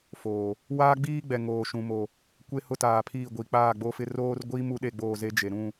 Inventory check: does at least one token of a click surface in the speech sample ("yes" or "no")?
no